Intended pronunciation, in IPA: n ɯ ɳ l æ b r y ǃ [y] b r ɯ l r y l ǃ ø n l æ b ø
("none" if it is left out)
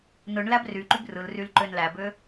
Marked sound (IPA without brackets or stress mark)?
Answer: y